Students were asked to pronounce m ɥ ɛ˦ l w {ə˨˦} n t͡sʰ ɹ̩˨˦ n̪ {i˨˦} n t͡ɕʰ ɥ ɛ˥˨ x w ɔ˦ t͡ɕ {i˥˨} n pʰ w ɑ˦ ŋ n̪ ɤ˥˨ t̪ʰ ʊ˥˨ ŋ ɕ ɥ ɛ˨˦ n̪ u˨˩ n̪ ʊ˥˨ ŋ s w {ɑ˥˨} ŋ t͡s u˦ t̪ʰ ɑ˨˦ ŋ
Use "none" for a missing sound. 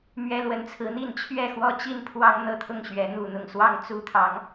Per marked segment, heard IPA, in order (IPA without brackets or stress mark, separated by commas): ə˨˦, i˥˨, i˥˨, ɑ˥˨